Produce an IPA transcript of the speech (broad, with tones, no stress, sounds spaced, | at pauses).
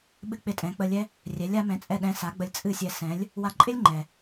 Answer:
ɓ ɨ˥ k͡p ɪ˥˩ tʼ ɛ̃˩˥ k͡p ə˧ lʲ ɛ˥ | rʲ ɛ˩˥ lʲ a˩˥ m ɛ̃˩˥ t͡sʼ ɛ˥˩ ɗ ɛ̃˧ s a˩˥ ɡ͡b ə˧ lʲ t͡sʼ ɨ˥˩ sʲ ɛ˧ s ɛ̃˩˥ lʲ | w a˧ ǃʼ ɪ˥ lʲ ŋ͡ǃ ɛ˩